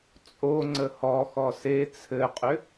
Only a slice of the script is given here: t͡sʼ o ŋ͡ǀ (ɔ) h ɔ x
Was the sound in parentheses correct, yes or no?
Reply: no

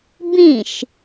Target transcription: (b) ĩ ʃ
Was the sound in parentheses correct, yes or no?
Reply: yes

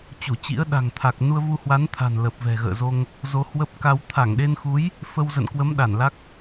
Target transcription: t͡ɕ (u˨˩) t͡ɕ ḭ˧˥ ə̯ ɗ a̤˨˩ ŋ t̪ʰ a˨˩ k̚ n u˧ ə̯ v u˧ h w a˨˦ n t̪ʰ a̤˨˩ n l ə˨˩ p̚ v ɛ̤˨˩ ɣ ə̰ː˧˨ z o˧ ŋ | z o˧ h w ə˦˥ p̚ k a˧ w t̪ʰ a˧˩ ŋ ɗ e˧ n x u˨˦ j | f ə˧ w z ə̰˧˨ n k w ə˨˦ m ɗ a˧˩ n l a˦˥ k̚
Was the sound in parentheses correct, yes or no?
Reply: no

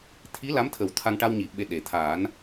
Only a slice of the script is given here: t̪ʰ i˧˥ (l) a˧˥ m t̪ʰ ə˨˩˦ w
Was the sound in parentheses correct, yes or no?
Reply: yes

